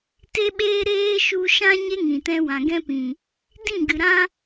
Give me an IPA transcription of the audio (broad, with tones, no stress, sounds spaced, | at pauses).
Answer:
t e˧ ɓ eː˧ ɾ eː˦ ʃ u˧ ʃ ã˦ ɲ e˦ ŋ ĩ˨ t ɛ̃˧ w ã˨ ɡ ɛ̃˦ p ĩ˨ | d ĩ˦˨ ɡ ɨ˨ ɾ ã˧